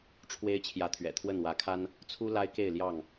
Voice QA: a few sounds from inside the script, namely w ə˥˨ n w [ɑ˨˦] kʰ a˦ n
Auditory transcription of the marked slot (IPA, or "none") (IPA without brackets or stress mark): ä˨˦